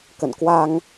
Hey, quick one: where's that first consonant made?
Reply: velum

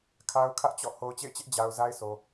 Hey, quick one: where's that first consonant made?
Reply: velum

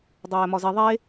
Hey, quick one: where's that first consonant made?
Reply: tongue tip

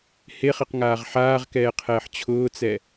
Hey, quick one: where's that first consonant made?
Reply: throat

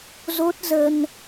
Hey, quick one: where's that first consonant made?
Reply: tongue tip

